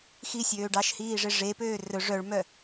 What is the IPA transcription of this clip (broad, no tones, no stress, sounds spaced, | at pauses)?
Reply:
x i sʲ øː ɖ ɑ ʃ h iː ʐ e ʐ e p øː r ɵ ʐ œ ɭ m œ